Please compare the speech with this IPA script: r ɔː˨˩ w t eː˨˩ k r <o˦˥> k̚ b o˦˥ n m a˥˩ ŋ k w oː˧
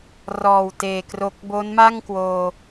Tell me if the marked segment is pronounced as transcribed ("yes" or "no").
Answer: yes